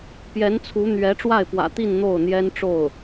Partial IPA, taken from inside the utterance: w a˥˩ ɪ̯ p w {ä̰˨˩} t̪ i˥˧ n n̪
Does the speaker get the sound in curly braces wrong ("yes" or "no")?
no